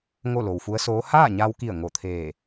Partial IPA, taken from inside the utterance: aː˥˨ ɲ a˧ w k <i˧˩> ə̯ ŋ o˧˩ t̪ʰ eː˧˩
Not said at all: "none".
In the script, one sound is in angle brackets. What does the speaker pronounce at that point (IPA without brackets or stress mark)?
i˧˩